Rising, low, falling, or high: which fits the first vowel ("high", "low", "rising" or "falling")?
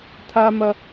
high